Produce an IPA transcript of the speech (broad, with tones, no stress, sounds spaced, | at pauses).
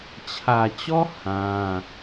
t͡ɕʰ ä˨ t͡ɕ ɔ˦ h ã˦